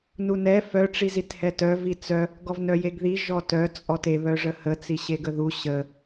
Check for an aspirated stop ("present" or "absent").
absent